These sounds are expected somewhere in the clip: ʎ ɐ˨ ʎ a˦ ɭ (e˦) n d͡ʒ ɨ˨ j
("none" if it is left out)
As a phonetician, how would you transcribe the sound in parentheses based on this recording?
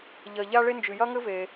e˦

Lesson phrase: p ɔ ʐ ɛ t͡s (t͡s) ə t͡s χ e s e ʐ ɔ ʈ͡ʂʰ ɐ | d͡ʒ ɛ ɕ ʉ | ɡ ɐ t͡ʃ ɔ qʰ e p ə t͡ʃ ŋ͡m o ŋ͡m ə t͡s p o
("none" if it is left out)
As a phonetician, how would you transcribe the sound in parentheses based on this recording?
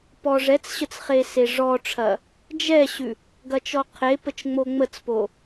ɕ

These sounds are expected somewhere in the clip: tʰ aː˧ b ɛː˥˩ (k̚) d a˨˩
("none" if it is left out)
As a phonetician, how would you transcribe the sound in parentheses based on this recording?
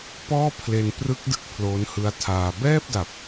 p̚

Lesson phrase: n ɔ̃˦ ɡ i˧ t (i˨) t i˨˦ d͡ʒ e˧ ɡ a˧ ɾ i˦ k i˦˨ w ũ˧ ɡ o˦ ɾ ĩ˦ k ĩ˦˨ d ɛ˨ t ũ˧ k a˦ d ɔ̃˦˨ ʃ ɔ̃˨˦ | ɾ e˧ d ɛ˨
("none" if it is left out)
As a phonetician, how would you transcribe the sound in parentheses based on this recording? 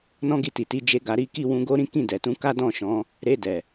i˨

